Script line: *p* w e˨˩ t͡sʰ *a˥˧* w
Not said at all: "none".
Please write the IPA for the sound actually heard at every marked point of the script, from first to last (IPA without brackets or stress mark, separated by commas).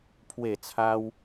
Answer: pʰ, a˧